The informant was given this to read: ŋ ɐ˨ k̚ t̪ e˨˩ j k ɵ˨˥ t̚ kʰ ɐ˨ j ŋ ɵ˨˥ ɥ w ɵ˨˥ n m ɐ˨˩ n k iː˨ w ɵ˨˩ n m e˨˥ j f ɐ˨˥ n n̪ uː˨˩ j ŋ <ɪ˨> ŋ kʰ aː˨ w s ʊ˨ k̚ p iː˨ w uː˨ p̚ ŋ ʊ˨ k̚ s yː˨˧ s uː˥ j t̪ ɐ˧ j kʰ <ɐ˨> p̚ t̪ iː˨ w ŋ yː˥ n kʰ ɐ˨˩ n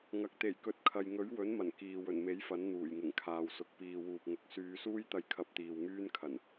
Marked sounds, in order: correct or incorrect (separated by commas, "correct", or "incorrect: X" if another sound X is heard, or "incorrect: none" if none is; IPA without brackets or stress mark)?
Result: incorrect: ɪ˨˩, incorrect: ɐ˧